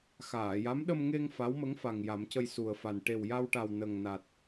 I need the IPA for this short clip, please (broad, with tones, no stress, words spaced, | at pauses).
xaː˨˩˨ja˧˥m ɗə˧mŋe˧ŋ fa˧˥wmə˧˥ŋfa˨˩ŋ ja˨˩˦mcə˧j su˨˩ə̯fa˨˩n ʈe˨˩wja˧wʈa˨˩w nə˨˩ŋ na˨˩t̚